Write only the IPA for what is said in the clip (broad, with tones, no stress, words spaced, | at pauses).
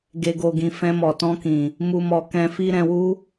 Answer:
ɡe˨ɡo˨ɡĩ˨ fɛ̃˧mɔ˨tɔ̃˧kĩ˨ | mu˨mɔ˨ kɛ̃˧fi˦ ɾɛ̃˧wu˦